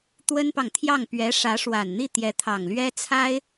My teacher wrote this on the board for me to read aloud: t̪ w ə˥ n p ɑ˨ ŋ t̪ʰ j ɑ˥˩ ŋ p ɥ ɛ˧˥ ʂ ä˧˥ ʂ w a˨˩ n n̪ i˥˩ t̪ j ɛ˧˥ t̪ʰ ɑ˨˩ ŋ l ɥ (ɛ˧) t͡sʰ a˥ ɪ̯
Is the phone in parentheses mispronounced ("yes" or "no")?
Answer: yes